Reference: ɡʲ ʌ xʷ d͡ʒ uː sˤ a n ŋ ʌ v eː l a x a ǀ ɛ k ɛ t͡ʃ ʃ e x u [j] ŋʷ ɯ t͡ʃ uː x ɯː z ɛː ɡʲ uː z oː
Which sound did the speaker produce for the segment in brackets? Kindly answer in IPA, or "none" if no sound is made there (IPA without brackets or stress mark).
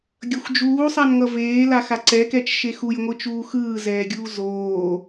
j